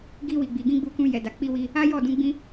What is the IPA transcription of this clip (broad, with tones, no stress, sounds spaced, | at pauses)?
ɡ i˧ w i˨ ɡ͡b i˨ ɡ ĩ˧ ɡ͡b u˧ k ũ˧ j ɛ˨ d a˨ k͡p i˧ w i˧ | a˦ j ɔ˦˨ d ũ˧ ɡ͡b ĩ˦